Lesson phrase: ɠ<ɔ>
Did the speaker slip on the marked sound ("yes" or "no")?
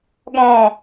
yes